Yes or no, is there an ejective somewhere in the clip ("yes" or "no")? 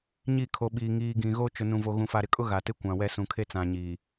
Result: yes